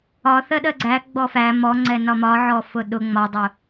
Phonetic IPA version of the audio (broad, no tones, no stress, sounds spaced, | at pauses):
ɒ θ ɜ ɗ ɜ ɡ͡ǀ æ ɡ͡b ɔ f æ m ɔ ŋ͡ǀ ɛ n ɒ m ɒ ʕ ɔ f ʊ ɗ ʊ ŋ͡m ɒ dˤ ʊ